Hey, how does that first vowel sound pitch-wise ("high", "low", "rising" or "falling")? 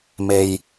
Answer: low